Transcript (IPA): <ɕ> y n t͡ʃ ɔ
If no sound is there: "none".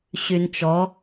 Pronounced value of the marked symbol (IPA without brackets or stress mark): ɕ